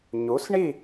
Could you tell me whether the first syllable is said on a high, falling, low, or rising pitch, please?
rising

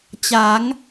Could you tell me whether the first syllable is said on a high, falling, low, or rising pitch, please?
rising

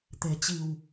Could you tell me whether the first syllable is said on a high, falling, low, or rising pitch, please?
low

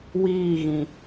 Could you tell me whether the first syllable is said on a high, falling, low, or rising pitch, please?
falling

